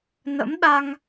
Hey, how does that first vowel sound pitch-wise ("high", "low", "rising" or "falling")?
rising